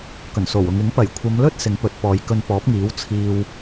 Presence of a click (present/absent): absent